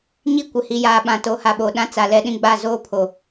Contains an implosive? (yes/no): yes